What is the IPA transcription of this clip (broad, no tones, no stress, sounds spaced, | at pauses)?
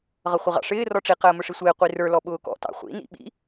ʁ ʌ χʷ ɪ ʁ ɑ̰ ʂ ɪː r ɔ ʈ͡ʂ i q əː m ʊ ʂ i sʷ ɪː qʷ i r ə˞ l ɔ ɓ ʊː k ɔ̰ t ɑ̰ χʷ ḭ n ḭ ɓ ḭ